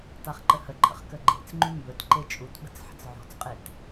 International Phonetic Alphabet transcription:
taχǃəhəǃʰə̰χ kəɡ͡ǃḛt͡sŋ͡ǃy mbɵtǃe t͡ʃʼutɓə̤t͡s ħə̤t͡sʕo̤t͡sqʼet

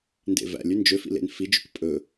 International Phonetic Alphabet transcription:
ndḛvæ̰lʲʉ nd͡ʒøfḭ lḛnfid͡ʒʉk pʼɵ

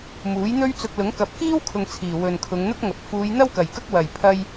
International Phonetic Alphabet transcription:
muː˨˥j n̪ɵ˥ɥ t͡sʊ˧k̚ lʊ˨˥ŋ kɐ˨p̚kiː˥w kʰʊ˧ŋt͡sʰiː˨˩ wɵ˨nkʰʊ˨˧ŋ n̪ʊ˥k̚ŋɐ˨˥p̚ fuː˨˧jn̪ɐ˥w kɐ˨˩jkɐ˥k̚ wɐ˨˩jpʰɐ˧j

